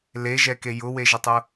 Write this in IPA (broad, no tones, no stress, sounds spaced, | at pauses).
l e ʒ ɛ k e j ʊ w e ʒ e tˤ ʊ